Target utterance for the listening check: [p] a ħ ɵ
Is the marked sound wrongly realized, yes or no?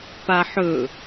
no